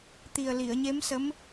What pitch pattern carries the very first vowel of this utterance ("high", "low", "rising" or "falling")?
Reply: low